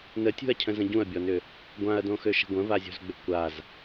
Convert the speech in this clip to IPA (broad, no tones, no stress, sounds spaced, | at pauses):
n ə tʲ ṳ ɐ̯ cʰ ə̃ z ə̃ ɟ ũ ɐ̯ bʲ ɔ n ʏ | ɡʷ ã ɐ̯ d õ x ø ʃ ə̤ ɡʷ ə̃ v a zʲ o̤ z ɡ͡b ʏ kʷ a z